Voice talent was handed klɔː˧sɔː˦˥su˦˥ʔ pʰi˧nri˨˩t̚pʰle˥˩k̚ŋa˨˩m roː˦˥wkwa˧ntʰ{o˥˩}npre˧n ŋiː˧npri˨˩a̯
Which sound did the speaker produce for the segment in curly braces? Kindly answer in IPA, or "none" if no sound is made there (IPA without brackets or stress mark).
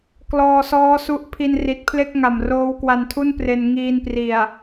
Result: u˥˩